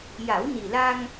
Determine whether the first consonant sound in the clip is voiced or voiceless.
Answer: voiced